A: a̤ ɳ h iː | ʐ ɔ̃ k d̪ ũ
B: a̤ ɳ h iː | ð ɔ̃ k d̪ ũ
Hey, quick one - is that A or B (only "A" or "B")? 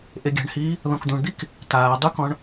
B